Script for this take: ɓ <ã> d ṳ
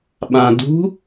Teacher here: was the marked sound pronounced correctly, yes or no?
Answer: yes